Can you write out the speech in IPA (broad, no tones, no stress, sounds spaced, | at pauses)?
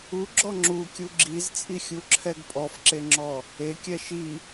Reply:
u ɡ͡ǁ ɔ ŋ͡ǁ u kʲ u ɡ͡ǁ i z t͡sʼ i xʲ u ǁʰ ɛ ɡ pʼ ɔ f ǁ e ŋ͡ǁ ɔ | e kʲ ɛ ʃ i